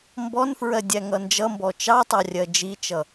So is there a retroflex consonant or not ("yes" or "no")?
no